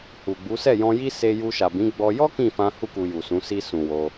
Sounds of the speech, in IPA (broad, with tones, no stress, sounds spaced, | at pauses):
h u˨ ɡ͡b u˨˦ s ɛ˦˨ j ɔ̃˧ j i˦ s e˧ j u˧ ʃ a˨ b ĩ˨˦ ɡ͡b ɔ˧ j ɔ˦ k ĩ˦˨ f ã˧ h u˦ k u˧ j u˨ s ũ˨˦ s i˧ s ũ˨ w o˧